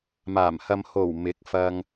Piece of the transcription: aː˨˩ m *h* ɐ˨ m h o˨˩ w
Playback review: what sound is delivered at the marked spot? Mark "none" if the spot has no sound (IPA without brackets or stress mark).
h